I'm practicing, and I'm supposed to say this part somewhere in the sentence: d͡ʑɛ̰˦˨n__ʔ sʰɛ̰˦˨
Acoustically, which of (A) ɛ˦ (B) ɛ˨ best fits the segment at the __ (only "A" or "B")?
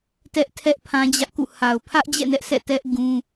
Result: A